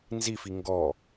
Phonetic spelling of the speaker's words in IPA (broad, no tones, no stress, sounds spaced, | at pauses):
n z i f i ŋ ɡ ɔ